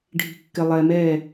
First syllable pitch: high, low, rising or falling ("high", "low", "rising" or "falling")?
low